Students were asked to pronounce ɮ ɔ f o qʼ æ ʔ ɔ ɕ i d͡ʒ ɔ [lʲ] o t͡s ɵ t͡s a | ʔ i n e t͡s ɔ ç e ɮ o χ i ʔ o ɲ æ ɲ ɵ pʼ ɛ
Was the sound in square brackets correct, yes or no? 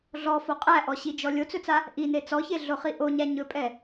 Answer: yes